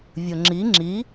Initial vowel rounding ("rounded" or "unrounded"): rounded